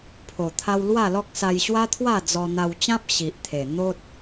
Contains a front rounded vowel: no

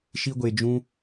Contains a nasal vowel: yes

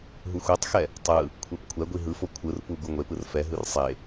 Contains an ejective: no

